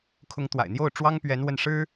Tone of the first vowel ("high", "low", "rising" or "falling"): rising